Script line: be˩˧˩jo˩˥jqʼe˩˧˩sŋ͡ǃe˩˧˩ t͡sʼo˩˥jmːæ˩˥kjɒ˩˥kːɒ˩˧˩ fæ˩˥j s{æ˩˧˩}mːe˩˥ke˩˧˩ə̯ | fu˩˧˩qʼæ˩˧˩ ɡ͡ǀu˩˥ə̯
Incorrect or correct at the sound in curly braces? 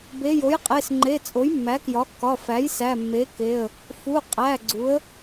correct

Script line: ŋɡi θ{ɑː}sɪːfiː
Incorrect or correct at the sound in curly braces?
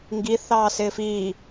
correct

